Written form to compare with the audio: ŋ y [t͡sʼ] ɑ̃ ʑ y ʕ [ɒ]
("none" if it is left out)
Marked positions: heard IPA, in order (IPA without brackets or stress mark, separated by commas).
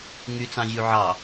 t͡s, ɑ